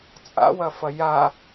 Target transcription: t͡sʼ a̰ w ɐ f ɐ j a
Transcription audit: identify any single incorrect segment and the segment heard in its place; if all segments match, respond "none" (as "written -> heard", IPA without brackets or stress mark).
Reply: none